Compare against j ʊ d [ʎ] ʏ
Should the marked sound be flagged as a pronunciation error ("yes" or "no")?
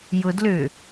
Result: yes